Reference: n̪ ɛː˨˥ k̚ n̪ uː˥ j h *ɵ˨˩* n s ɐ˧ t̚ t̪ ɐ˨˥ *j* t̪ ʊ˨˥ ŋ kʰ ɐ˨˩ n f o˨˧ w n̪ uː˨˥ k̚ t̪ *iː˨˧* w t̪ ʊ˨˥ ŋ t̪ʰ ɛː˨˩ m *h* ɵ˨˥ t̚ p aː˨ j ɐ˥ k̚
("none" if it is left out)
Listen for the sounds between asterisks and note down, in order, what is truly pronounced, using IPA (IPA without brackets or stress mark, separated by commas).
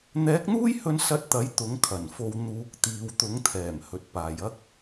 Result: ɵ˧, j, iː˨, h